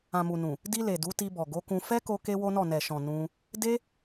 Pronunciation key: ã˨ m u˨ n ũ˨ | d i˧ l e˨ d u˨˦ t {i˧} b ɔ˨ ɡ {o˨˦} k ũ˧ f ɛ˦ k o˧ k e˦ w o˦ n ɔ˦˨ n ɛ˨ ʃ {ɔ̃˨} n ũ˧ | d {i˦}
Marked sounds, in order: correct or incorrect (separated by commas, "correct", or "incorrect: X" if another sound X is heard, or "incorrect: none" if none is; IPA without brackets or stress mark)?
correct, correct, correct, incorrect: e˦